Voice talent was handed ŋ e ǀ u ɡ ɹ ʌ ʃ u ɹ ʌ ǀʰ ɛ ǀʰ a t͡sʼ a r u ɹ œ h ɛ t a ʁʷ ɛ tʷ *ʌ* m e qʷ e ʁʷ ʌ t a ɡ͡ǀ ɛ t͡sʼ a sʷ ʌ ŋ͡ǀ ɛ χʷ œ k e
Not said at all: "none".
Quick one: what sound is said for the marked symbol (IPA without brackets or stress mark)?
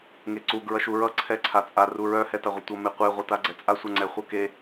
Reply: ʌ